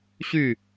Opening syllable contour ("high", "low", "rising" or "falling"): falling